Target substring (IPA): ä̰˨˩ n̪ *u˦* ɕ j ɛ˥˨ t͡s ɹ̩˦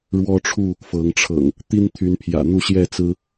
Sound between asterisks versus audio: incorrect: u˥˨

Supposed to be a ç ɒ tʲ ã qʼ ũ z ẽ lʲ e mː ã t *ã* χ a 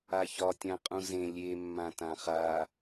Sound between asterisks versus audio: correct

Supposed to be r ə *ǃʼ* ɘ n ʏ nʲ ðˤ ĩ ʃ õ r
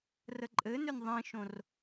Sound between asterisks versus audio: correct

